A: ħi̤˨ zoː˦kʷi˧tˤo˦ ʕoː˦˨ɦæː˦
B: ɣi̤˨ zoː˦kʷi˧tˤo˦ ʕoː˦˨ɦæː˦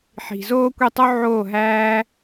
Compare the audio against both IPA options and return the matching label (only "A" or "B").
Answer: A